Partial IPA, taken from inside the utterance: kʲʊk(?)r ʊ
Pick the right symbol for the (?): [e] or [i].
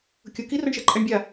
i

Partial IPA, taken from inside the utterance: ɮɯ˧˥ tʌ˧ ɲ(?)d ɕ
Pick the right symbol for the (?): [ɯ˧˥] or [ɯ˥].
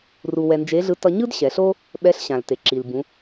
ɯ˥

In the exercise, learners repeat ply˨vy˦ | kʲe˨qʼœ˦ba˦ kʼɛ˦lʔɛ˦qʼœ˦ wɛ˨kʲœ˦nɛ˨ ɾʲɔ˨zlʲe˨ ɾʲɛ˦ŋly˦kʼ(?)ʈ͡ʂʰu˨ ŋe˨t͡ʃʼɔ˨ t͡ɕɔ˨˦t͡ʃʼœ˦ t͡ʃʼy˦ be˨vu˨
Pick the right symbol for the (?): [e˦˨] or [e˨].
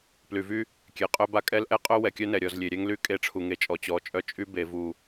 e˦˨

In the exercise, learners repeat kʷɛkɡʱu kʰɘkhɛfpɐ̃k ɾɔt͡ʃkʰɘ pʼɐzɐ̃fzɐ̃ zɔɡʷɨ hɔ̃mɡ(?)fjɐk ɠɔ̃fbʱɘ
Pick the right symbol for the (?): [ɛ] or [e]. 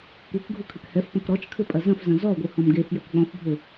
e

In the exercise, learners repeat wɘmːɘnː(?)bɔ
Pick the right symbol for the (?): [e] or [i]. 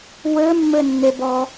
e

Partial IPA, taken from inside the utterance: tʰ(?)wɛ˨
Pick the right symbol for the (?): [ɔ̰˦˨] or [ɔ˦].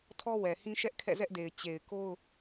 ɔ˦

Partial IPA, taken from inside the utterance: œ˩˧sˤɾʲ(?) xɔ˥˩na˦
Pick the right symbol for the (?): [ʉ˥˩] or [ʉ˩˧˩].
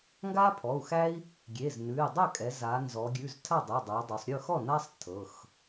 ʉ˥˩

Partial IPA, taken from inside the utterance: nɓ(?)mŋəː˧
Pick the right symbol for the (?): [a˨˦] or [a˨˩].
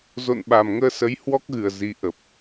a˨˩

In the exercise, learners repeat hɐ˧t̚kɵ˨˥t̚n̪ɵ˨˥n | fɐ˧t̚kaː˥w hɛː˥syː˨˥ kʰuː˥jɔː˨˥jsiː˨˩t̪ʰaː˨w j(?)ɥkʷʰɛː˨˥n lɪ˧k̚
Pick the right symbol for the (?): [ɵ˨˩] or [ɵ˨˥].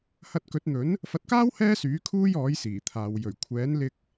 ɵ˨˩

